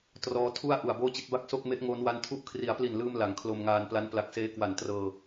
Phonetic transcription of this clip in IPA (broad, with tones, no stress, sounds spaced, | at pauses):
t r ɔː˦˥ tʰ u˥˩ a̯ ʔ u˨˩ a̯ b oː˥˩ t͡ɕ i˦˥ t̚ b a˥˩ k̚ s o˥˩ k̚ m e˦˥ ʔ ŋ oː˦˥ n w a˦˥ n tʰ u˥˩ ʔ kʰ r i˩˦ a̯ p l i˨˩ n l ɯː˧ m l a˩˦ ŋ kʰ l o˧ m ŋ aː˧ n p l a˦˥ n p l a˨˩ k̚ s eː˦˥ k w a˨˩ n t r ɤː˧